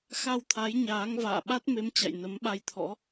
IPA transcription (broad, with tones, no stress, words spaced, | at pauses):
xa˧wt̪ʰa˨˦jɲaː˨˦ŋ va̰ː˧˨ɓa˦˥t̚ me˨˦mt͡ɕa̰˧˨j nə˨˦mɓa˧jt̪ʰɔ̰˧˥